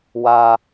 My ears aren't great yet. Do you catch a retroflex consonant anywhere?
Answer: no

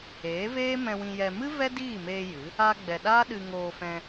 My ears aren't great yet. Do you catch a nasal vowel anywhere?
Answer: yes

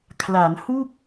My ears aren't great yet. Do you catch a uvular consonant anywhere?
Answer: no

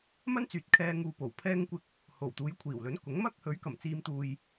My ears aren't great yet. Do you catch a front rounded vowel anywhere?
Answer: yes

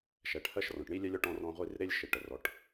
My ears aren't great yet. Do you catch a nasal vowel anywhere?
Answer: yes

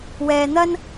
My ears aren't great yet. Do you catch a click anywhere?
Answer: no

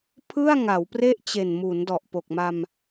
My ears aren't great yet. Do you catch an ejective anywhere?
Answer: no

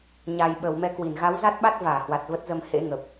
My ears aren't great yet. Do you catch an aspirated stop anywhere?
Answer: no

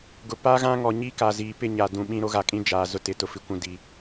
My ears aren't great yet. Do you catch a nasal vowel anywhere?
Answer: yes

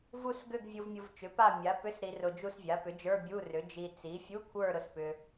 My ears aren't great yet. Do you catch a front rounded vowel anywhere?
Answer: yes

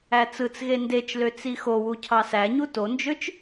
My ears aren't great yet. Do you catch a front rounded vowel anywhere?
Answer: yes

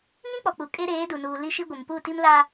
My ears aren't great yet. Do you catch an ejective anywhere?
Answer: yes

